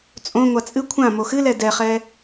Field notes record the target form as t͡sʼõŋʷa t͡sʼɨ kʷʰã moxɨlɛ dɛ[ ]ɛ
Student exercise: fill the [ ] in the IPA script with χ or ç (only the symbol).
χ